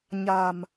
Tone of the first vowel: low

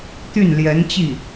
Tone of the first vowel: falling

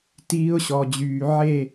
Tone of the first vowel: high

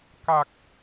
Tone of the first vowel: low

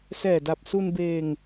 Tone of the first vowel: low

